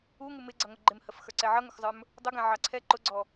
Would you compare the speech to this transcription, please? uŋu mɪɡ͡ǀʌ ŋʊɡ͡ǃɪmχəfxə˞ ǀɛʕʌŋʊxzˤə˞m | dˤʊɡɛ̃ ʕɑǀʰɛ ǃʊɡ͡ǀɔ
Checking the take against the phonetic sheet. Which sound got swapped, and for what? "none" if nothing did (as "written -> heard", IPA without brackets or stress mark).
χ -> h